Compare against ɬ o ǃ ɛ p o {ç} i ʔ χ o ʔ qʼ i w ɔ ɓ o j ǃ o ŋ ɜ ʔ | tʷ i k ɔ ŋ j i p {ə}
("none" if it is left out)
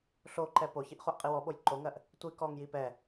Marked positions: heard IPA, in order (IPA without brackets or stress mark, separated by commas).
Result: ç, ɛ